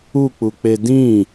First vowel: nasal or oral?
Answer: oral